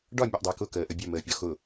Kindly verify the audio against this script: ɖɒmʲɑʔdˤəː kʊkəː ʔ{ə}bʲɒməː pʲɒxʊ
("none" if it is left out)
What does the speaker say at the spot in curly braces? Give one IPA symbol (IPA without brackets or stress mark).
ə